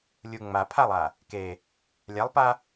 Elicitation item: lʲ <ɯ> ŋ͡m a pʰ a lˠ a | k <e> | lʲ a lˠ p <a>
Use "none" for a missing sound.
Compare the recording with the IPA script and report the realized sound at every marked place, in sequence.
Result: u, e, a

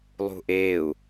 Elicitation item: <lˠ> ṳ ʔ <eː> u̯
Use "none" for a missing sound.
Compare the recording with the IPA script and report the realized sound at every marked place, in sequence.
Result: lˠ, eː

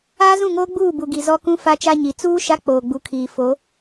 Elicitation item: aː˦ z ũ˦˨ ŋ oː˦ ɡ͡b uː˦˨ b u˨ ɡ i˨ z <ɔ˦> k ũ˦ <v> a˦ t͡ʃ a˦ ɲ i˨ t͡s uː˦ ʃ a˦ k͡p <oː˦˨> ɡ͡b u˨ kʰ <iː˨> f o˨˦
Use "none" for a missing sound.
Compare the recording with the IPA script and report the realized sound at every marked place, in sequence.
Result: ɔ˦, f, oː˨, iː˨

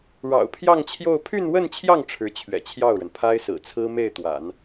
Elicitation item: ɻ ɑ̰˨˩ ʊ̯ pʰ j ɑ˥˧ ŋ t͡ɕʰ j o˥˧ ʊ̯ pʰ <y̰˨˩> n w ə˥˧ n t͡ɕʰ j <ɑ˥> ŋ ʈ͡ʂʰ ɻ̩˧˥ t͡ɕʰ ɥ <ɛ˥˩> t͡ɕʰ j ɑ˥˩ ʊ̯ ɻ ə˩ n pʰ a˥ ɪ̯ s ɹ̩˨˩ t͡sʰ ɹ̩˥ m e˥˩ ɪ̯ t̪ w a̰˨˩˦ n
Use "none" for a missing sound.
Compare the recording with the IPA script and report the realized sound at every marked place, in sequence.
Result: y˥˧, ɑ˥˩, ɛ̰˨˩

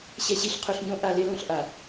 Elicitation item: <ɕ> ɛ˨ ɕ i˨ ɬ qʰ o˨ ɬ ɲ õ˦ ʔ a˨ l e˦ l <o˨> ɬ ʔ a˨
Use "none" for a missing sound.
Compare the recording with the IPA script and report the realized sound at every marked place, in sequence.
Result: ɕ, õ˨

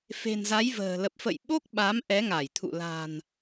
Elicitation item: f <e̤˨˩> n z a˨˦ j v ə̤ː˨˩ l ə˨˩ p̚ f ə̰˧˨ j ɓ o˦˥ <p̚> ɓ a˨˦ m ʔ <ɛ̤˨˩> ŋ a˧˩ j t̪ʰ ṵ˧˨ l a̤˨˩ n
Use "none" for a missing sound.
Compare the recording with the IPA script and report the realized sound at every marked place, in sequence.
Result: e̤˨˩, k̚, ɛ˨˦

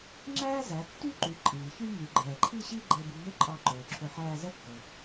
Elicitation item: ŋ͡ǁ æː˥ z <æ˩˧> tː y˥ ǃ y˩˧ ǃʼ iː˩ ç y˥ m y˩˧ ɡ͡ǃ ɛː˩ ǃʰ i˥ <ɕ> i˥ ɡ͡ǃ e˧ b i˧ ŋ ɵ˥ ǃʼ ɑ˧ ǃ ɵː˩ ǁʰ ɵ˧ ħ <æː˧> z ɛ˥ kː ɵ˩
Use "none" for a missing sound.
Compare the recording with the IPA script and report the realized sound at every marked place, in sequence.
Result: æ˩˧, ɕ, æː˧

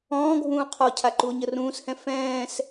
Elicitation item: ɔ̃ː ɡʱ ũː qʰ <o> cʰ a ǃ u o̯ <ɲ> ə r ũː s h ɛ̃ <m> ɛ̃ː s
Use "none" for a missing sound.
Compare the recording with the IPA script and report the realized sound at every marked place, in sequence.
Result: ɔ, ɲ, f

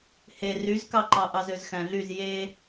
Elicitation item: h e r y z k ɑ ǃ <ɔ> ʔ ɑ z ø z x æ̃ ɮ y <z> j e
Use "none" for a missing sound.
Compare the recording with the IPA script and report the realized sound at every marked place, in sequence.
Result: ɑ, z

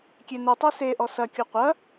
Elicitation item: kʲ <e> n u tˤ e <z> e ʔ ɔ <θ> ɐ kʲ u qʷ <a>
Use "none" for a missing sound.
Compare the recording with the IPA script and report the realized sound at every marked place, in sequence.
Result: e, s, s, ɐ

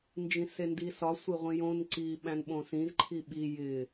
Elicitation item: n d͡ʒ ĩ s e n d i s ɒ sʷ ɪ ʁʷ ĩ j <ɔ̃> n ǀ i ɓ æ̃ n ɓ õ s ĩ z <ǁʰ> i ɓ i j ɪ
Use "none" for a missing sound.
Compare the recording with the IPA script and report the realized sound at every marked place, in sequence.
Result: õ, ǃʰ

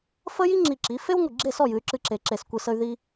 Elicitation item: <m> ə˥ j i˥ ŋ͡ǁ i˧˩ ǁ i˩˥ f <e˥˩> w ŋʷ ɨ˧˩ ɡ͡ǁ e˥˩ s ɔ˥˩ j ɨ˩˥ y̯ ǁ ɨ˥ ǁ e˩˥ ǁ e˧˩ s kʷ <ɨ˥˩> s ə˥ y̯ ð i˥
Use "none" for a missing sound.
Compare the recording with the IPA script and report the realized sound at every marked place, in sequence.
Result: f, e˥, ɨ˥˩

